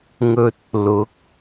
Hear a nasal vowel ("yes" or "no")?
no